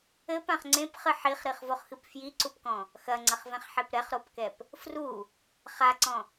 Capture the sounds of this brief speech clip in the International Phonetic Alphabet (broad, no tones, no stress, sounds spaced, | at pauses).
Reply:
ɘ p ã χ ŋ͡ǀ ẽ p χ ɨ ħ i χ ɾ i χ v o χ x ɨ p f j i ǀ u p k ɔ̃ | x ɐ ŋ͡ǀ ɐ χ v ɛ̃ χ ħ e p ɾ ɛ χ ɾ o p k ɛ p | f r u | χ a ǀ ɔ̃